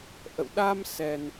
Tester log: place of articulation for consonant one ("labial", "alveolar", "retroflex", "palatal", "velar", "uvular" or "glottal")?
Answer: glottal